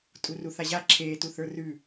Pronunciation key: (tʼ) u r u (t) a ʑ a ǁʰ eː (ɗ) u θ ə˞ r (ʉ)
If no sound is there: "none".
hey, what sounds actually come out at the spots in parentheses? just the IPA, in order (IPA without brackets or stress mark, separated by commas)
tʼ, θ, t, ʉ